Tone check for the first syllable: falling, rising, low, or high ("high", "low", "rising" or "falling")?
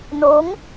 rising